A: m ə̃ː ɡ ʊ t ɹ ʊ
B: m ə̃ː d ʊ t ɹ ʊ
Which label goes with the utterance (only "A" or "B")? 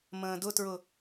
B